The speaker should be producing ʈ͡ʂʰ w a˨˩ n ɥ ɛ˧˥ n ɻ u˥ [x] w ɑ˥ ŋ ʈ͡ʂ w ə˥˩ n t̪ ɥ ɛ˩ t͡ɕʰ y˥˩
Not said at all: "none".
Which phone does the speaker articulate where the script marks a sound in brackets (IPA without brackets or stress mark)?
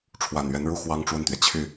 x